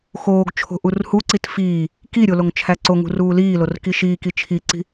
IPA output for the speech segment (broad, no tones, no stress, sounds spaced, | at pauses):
x oː ɡ t͡ʃʰ o̤ ʔ u r h u ǀ i t f iː | k i ɾʲ o l o ŋ t͡ʃʰ æ ǀ o ŋ ṳ r uː l iː l o r k i ʃ iː k i t͡ʃʰ i ǀ i̤